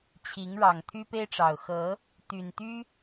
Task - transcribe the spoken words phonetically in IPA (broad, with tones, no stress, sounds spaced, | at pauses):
t͡ɕʰ i˨˦ ŋ ɻ ɑ˨˩ ŋ t̪ʰ y˦ p e˦ ɪ̯ ʈ͡ʂ ɑ˨˩ ʊ̯ x ɤ˨˦ | t̪ y˨˩ n t̪ y˦